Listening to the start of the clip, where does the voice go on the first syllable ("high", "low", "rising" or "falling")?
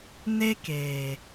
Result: high